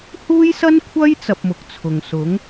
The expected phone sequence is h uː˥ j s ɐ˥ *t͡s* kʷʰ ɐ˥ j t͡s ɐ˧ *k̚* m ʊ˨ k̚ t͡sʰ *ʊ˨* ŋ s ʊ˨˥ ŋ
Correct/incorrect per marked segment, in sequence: incorrect, incorrect, correct

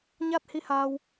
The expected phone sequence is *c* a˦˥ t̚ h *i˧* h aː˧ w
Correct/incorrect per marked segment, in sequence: incorrect, correct

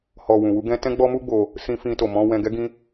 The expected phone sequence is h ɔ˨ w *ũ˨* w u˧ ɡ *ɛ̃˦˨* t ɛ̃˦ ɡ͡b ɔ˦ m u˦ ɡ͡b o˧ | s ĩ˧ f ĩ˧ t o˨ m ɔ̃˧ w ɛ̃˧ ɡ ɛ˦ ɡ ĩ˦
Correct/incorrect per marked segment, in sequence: correct, incorrect

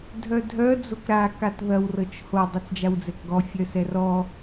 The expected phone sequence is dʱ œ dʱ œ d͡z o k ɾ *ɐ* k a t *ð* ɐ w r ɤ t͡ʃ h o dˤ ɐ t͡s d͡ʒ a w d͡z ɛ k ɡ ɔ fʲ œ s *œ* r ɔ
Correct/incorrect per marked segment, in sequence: incorrect, correct, incorrect

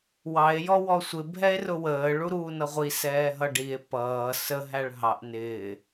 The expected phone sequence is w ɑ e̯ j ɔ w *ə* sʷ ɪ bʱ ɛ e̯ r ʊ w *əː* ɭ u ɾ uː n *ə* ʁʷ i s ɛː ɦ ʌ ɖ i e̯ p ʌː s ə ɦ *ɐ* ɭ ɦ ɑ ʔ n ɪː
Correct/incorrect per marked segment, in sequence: incorrect, correct, incorrect, incorrect

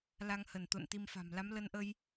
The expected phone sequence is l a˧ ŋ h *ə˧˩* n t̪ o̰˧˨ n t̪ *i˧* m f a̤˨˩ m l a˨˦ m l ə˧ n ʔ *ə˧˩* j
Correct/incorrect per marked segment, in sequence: correct, correct, incorrect

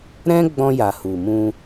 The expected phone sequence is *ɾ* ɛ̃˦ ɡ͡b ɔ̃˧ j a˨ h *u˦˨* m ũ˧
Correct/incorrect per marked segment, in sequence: correct, incorrect

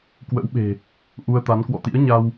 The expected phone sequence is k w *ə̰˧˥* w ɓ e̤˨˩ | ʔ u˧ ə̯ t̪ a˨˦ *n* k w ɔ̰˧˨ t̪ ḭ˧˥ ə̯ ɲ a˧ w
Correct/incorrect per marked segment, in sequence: correct, correct

